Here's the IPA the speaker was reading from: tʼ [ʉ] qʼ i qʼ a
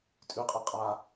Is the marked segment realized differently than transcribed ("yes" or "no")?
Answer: no